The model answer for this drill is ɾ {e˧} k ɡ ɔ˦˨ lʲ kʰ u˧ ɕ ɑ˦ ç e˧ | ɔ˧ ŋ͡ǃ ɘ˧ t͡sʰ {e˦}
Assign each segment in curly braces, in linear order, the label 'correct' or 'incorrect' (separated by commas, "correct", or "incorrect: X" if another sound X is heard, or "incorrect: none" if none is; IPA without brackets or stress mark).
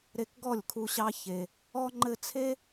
correct, correct